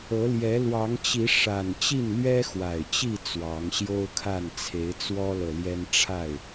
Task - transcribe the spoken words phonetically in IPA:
ɤ˨˦ l j ɛ˨˦ l w ɑ˨˦ ŋ t͡ɕ i˨˦ ʂ a˨˩ n t͡ɕ i˥˨ n l ɥ ɛ˦ x w a˨˩ ɪ̯ t͡ɕ i˥˨ t͡s w ɑ˨˦ ŋ ɕ j o˦ ʊ̯ kʰ a˥˨ n t͡sʰ e˨˦ ɪ̯ t͡s w ɔ˦ l ɤ˨ l j ɛ˦ n ʈ͡ʂʰ a˥˨ ɪ̯

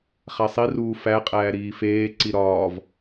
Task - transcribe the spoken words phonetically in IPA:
χ æ sˤ i r uː f æ qʼ æː ɾ iː f eː ǀ i ɾ ɒː v

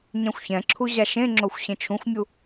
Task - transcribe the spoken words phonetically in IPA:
ɲ ã xʷ ç ɛ̃ ǁʰ u ʑ a ʃ ẽ ŋ͡ǁ o xʷ ɕ ẽ t͡ʃʰ ũ xʷ mʲ u

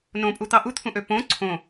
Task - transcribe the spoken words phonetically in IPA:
n õ pʼ u t̪ ɑ ʔ u t̪ʰ ũ ʔ ø p õ ǀʰ õ

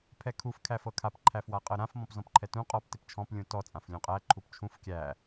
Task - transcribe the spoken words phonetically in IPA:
pʰ ɛ kʰ u f kʰ æ f ɤ kʰ a p ǃʰ æ f w a qʼ ɤ ɾ ã f m ɔ̃ p z ɔ̃ p ǃʰ ɛ t ũ qʼ ɔ p t ɪ p t͡ʃʰ ɔ̃ p lʲ ũ t ɔ t͡sʼ ã f lʲ ũ qʼ æ ǃʰ u p t͡ʃʰ ũ f kʲ æ

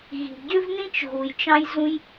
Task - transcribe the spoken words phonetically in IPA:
ɣ i̤˩ ɟ ʏ˥ v n ĩ˥ t͡ʃ ɣ u˩ j t͡ʃ ɑ̃˥ j z ũ˥ j

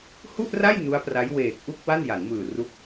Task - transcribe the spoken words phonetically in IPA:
h u˥˩ ʔ r a˥˩ j n u˦˥ a̯ p r a˦˥ j w eː˨˩ k̚ ʔ u˥˩ k̚ w a˥˩ n j a˩˦ n m ɯː˨˩ r u˦˥ k̚

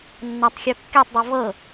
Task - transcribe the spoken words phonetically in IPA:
nː a tˤ xʲ o kː e tˤ dˤ ɯ v ɤ

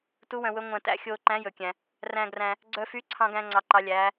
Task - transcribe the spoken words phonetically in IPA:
t u˨˦ w œ̃˨ w ɵ˨˦ ŋʷ æ̃˨ t æ̰˨ xʲ oː˨ ǃ æ̃˨˦ j ɵ˨ kʲ æ̃˨ | r æ̃˨ ɡ r æ̃˨ | ɡ͡ǀ œ˨ f y˨˦ ǀʰ ɑ̃˨ ɡ æ̃˨˦ ŋ͡ǀ ɑ˨ ǃ ɑ˨˦ lʲ æː˨˦

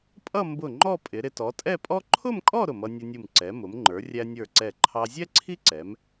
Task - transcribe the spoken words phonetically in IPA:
pʼ ʌ˥˧ m b ʊ˧˩ ŋ͡ǃ ɔ˥˧ pʼ ɪ˩˧ ɾ ɪ˧ t ɔ˩˧ tʼ ɛ˥˧ pʼ ɔ˥ ǃʰ ʊ˥˧ m kʼ ɔ˥˧ ɾ ʊ˧˩ m ʌ˧ nʲ ʊ˧ nʲ u˧˩ m ǀ ɛ˩˧ m ʊ˩˧ m ŋ͡ǃ ə˞˩˧ rʲ æ˧ nʲ ə˞˧˩ ǀ ɛ˧˩ ǃʰ ɑ˧ zʲ ɛ˥ ǀʰ i˥ ǀ ɛ˩˧ m

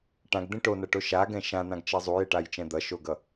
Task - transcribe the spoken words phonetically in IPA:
ʈ ã ɡ d̪ ẽ ʈ o n ʌ ʈ o ʃ a ɡ ɛ̃ ʃ ã n̪ ã ɡ t͡ʃ ɛ zˤ u j e ʈ a j t͡ʃ ɛ̃ d̪ ʌ ʃ o ɡ ʌ

